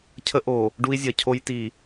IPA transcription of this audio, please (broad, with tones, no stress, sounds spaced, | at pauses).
cʰ ə˦ ʔ o˨ | ɖ u˦ i̯ zʲ ɐ˨ cʰ o˦ j t i˨